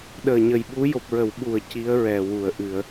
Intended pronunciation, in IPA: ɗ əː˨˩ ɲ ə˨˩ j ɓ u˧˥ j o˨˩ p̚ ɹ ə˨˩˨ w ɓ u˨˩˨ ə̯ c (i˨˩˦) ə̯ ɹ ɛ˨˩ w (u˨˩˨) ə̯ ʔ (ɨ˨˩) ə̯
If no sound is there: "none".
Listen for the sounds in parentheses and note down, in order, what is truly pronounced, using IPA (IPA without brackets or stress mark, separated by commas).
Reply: i˧˥, u˨˩˨, ɨ˨˩˨